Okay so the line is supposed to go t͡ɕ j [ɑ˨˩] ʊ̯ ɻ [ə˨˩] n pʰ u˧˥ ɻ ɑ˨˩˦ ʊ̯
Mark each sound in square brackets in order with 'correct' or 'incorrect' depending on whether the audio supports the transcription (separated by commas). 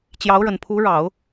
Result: incorrect, correct